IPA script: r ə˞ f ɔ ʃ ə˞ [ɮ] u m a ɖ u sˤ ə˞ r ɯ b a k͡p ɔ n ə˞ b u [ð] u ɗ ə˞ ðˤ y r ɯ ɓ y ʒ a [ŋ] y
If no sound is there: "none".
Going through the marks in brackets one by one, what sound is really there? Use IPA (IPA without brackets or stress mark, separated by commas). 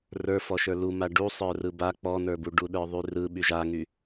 l, ɖ, ŋ